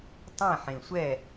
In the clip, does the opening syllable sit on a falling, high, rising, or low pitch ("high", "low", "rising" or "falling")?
falling